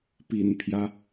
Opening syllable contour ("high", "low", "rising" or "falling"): low